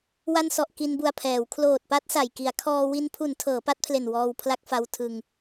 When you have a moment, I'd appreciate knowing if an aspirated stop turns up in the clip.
yes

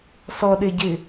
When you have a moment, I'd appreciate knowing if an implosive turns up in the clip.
yes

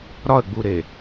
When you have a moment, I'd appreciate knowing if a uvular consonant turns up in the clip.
no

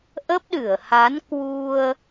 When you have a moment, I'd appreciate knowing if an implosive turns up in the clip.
yes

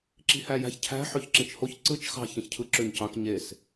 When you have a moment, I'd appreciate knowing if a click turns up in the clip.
yes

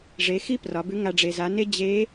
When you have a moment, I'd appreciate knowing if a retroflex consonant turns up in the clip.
yes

